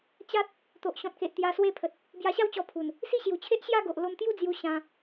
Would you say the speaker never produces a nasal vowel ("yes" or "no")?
no